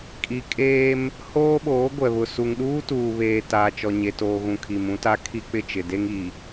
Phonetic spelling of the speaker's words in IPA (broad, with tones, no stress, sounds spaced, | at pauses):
kʼ i˨ kʼ eː˦ m | h oː˦ ɓ oː˨˦ ɡʷ ɛ˨ β ʊ˨ s u˨ ŋ ɗ uː˦ t uː˨ β eː˨ t aː˦ t͡ʃ ɔ˦ ɲ e˨ t oː˨ ɣ ũ˨ kʰ i˨ m ũ˦ t a˦ kʰ i˦ k͡p ɪ˦˨ t͡ʃ ɪ˨ d e˦ ŋ i˨